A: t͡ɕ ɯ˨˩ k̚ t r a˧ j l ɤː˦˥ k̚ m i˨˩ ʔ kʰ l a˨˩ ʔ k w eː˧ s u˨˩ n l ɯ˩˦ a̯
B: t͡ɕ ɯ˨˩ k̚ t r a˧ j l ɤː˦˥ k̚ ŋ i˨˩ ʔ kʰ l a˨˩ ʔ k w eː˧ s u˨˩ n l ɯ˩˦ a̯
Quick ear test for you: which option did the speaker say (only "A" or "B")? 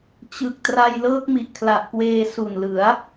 A